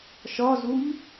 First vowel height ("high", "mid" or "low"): low